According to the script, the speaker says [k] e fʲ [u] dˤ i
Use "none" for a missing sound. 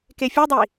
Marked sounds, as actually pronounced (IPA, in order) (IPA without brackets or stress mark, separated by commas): k, u